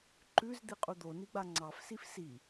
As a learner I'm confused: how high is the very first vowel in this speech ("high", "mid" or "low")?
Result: high